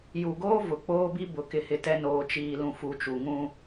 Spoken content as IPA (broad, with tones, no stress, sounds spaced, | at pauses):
j u˨ ɡ oː˦ v ʊ˨ k͡p oː˦ b i˦ b ʊ˨ k ɪ˦ h ɪ˦ t ɛ˦ n oː˨ t͡ʃ iː˨ l ũ˨ f u˨˦ t͡ʃ u˨ ŋ ũ˦